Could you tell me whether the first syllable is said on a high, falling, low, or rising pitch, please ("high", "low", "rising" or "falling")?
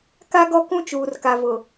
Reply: high